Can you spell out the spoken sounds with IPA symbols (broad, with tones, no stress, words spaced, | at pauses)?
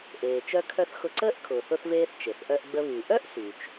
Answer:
ʔeː˩t͡ʃœ˧kʰœ˧θ xʊ˧ǀəː˥ʔkʰʊː˩θ ʊ˧θveː˧θ t͡ʃe˩θʔœ˧ʔ ɡ͡bə˧βy˩ ʔœ˥ʔsy˩t͡ʃ